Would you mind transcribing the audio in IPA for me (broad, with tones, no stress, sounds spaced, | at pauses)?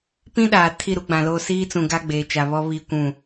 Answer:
p ĩ˦ ɗ aː˨ tʰ i˦˨ ɾ u˦ ɡ͡b ã˨ l o˦ s iː˦ t͡s ũ˨ ɡ a˦ ɡ͡b eː˨ t͡ʃ a˨ β ɔ˦ β i˦˨ kʷ ũ˦˨